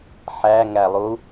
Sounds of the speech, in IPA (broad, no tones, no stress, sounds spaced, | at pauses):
ħ æ ŋ æ lˠ u